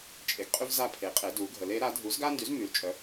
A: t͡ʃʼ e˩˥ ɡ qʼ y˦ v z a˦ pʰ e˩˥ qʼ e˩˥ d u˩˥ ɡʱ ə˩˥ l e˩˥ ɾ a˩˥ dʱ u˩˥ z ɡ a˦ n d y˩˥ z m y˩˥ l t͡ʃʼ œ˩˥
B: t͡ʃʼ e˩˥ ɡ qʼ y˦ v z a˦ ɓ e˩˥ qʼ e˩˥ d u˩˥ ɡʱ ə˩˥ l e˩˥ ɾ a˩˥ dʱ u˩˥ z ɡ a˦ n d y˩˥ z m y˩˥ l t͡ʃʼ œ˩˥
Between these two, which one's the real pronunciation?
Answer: A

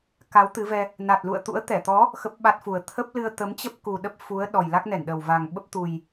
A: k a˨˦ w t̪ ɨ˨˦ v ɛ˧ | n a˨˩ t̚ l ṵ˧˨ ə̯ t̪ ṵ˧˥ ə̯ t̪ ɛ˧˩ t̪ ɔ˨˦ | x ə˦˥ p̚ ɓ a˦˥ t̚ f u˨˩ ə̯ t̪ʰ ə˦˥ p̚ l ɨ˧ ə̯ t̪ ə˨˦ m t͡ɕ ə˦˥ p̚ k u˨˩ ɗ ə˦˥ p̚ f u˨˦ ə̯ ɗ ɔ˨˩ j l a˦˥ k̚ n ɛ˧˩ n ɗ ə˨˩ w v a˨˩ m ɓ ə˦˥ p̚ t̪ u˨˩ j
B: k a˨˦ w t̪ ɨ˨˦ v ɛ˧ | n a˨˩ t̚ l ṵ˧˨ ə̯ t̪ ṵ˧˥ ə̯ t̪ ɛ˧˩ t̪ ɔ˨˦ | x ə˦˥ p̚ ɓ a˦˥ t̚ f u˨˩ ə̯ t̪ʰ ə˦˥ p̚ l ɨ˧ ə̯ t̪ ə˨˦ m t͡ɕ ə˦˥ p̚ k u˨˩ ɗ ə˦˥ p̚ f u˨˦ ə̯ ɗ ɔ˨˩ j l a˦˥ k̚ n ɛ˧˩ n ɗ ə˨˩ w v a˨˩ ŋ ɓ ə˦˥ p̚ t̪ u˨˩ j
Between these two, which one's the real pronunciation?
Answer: B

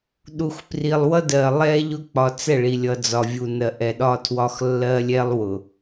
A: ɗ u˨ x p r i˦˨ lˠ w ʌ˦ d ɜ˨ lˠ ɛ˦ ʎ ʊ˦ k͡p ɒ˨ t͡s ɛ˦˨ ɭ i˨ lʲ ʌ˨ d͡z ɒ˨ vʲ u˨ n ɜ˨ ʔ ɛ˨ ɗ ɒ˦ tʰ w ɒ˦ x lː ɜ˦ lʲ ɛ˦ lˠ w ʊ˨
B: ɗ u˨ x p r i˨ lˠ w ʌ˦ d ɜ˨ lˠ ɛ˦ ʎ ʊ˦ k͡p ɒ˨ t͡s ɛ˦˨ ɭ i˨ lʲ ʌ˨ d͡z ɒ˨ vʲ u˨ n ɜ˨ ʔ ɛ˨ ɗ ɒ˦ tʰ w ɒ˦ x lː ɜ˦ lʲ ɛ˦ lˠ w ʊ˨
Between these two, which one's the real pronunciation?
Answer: B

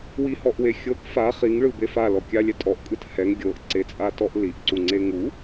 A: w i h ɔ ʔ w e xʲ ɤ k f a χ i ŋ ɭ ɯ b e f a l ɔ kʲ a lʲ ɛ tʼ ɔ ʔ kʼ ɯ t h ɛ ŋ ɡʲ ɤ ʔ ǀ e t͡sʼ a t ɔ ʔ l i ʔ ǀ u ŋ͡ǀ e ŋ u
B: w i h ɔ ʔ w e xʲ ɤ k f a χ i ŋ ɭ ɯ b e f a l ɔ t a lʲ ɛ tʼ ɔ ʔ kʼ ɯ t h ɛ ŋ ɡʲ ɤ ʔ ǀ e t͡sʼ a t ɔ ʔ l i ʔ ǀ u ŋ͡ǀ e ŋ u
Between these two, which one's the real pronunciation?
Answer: A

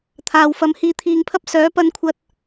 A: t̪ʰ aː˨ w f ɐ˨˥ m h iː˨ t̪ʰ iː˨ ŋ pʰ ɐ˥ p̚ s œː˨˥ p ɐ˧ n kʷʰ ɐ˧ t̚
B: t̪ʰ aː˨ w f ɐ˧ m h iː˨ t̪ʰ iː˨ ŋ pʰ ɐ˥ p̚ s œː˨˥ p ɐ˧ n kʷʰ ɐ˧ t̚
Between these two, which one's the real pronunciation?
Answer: A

